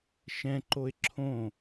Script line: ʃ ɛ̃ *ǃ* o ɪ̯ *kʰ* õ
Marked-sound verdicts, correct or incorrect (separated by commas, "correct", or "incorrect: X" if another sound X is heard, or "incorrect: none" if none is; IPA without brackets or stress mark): correct, incorrect: ǁʰ